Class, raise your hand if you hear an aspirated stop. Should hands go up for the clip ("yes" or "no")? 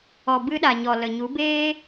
no